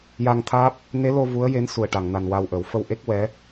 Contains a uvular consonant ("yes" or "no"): no